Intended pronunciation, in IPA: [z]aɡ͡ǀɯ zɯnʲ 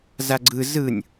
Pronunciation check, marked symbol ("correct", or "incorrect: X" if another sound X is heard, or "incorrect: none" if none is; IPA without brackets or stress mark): correct